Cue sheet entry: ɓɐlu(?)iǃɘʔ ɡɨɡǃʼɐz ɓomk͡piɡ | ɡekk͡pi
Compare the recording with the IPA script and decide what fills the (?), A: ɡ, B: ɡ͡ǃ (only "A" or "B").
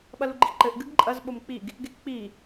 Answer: B